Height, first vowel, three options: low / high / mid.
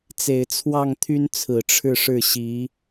mid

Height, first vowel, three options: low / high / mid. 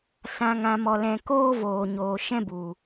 low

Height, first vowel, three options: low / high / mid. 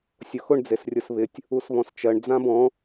high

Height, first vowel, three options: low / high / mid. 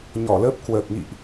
mid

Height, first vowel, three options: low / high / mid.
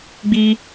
high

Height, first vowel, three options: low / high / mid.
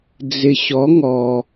high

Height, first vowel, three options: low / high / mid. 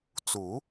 high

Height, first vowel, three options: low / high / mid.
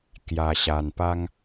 low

